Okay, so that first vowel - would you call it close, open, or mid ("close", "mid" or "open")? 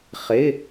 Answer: close